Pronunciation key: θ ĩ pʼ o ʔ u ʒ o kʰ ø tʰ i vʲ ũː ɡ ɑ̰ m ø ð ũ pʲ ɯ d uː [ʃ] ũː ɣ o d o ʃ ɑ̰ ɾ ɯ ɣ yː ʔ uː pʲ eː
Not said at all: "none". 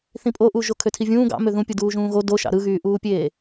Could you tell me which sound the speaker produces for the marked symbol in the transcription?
ʒ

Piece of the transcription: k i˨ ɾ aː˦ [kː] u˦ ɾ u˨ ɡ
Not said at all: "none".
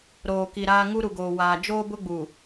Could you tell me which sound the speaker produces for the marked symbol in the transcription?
ŋ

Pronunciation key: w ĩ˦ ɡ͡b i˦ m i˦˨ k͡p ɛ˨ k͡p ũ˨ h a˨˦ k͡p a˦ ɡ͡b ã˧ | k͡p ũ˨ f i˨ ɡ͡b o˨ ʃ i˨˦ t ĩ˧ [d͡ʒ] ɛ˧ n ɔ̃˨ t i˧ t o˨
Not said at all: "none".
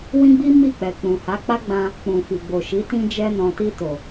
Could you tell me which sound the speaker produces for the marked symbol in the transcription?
d͡ʒ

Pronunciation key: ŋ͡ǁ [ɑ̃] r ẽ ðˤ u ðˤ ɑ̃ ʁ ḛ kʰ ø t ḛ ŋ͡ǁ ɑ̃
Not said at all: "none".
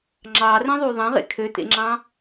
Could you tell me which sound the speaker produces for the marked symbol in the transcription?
ɑ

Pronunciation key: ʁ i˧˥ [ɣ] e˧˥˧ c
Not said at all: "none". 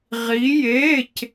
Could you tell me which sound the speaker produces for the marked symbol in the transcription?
j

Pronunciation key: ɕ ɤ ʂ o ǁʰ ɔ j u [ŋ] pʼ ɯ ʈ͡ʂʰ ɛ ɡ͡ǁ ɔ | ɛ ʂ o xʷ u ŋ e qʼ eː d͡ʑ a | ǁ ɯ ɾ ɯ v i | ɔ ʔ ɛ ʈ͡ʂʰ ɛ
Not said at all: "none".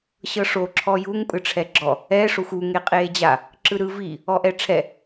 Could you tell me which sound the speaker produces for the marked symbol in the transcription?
ŋ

